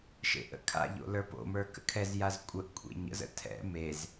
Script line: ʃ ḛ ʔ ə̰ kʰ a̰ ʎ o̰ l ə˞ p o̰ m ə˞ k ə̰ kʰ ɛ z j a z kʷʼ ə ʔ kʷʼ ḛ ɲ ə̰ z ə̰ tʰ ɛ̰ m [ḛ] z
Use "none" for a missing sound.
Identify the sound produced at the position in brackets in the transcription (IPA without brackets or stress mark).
e